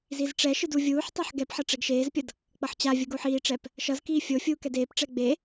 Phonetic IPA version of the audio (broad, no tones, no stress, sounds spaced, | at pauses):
z i z ʈ͡ʂ ɛ ʃ ɯ d u vʲ uː ħ tˤ a ħ ɡ ɛ p ħ ʌ ʈ͡ʂ ɛ ɡ ʃ eː z pʲ ʌ d | k͡p ʌ ħ t͡ɕ a vʲ ɯ ɡ o ħ iː ʈ͡ʂ ɛ p | ʃ ʌ z k iː fʲ o fʲ uː k ɛ d eː p ʈ͡ʂ ɛ ɡ͡b e